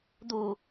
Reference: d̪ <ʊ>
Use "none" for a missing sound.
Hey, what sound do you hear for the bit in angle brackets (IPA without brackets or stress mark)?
u